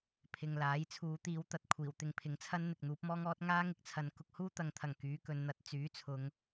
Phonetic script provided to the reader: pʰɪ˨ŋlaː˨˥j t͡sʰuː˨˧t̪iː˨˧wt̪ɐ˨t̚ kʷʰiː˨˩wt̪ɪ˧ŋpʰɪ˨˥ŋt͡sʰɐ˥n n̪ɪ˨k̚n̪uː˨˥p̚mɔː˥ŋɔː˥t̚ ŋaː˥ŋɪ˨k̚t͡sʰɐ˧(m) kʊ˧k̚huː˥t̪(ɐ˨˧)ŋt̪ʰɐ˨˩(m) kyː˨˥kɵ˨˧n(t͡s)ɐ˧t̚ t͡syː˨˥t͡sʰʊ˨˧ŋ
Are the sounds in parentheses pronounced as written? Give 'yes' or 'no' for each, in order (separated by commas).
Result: no, yes, no, no